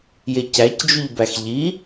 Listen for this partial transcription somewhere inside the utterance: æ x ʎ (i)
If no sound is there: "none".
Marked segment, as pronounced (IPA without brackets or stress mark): i